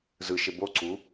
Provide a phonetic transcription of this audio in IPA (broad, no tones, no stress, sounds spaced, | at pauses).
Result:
z ɯ ʃ e b o ǀ u